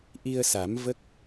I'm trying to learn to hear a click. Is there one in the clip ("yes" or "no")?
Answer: no